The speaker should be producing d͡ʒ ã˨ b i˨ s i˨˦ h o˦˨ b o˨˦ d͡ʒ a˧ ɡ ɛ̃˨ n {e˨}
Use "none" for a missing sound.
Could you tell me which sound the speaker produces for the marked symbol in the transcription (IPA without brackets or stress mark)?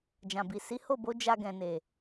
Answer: e˨